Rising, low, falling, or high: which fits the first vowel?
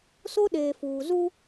high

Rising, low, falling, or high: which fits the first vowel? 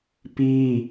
high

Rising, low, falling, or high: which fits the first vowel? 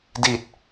falling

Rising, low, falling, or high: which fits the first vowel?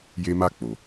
high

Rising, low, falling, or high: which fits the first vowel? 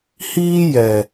high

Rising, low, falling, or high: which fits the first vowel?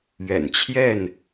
low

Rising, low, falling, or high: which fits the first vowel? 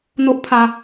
high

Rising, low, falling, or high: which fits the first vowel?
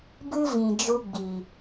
high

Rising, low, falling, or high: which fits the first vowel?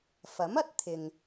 rising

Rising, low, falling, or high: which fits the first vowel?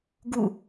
falling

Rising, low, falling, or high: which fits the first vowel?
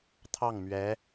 falling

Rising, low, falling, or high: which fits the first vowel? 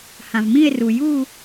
low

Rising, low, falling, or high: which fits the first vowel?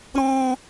high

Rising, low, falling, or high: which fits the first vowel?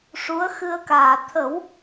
rising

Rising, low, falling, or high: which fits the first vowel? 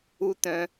high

